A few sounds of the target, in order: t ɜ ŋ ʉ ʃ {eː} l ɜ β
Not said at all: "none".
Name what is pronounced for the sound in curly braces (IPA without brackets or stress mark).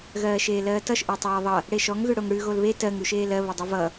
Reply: eː